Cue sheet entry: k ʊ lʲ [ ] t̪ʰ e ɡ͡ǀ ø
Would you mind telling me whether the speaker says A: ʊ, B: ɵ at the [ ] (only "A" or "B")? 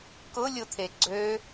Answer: A